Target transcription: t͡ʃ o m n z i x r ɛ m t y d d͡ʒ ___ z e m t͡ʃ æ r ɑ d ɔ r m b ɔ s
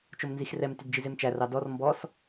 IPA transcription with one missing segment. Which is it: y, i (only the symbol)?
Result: i